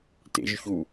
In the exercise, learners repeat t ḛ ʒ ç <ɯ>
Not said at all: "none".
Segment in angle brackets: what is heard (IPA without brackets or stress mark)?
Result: u